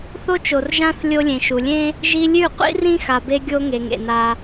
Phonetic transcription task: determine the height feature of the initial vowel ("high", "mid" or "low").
mid